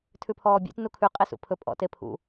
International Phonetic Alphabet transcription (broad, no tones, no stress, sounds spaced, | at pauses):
tʰ ʉ pʰ ɔː bʲ ḛ t n u kʰ ʉ qʼ e s ṵ pʰ ɵ pʼ ɔ̰ t e pʰ ṵ